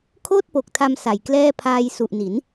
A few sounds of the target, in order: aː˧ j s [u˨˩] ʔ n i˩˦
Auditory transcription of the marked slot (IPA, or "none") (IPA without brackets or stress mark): u˨˩